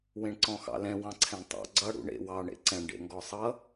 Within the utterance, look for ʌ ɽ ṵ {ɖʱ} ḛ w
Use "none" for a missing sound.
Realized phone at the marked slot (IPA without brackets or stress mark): ɳ